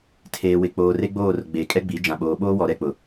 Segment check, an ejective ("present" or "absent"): present